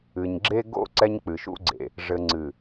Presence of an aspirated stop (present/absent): absent